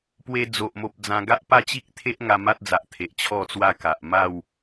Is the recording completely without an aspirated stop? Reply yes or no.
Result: no